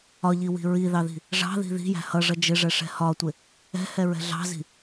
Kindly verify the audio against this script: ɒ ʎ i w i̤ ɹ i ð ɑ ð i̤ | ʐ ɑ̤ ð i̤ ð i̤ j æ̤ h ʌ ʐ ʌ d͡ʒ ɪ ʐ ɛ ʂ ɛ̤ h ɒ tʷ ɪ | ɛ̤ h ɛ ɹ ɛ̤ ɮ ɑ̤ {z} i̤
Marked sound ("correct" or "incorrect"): correct